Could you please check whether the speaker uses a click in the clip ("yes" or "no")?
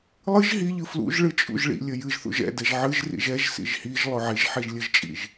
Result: no